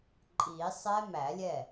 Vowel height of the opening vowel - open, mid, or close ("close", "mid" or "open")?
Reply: close